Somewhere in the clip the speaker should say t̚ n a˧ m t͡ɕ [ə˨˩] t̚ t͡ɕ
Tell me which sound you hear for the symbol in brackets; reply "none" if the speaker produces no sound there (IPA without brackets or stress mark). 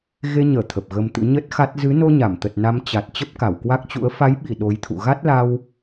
a˨˩